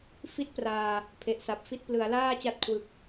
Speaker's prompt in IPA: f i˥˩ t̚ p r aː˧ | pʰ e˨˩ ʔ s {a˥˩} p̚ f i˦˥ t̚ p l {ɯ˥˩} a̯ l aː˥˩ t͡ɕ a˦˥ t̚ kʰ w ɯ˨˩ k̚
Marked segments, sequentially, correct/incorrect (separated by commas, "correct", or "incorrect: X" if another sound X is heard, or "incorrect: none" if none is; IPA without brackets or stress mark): incorrect: a˨˩, incorrect: ɯ˩˦